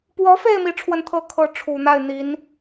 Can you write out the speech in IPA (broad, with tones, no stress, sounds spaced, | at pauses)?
p w ɔ˧˥ f e˥˧ ɪ̯ m i˥˧ ʈ͡ʂʰ w ə˥˧ n t̪ʰ ɤ˥˧ kʰ ɤ˥˩ ʈ͡ʂʰ u˨˩ n̪ a˥˩ ɪ̯ n̪ i˧˥ n